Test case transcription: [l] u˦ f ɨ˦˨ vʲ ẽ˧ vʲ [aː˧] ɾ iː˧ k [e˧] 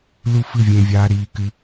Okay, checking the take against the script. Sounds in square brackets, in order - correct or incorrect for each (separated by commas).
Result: correct, correct, incorrect